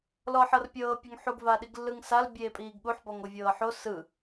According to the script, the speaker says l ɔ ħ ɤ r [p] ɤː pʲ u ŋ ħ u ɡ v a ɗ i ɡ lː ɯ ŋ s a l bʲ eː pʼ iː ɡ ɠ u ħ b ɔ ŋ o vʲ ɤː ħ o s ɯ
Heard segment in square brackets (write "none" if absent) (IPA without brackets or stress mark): pʲ